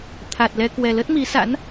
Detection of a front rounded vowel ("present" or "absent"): absent